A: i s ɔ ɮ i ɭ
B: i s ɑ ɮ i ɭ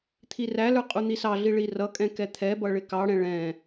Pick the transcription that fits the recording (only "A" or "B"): B